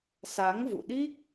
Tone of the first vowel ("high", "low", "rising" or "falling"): rising